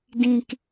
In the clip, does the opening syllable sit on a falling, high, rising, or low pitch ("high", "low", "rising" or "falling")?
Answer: low